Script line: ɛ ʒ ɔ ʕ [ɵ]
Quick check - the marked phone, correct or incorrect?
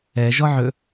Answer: correct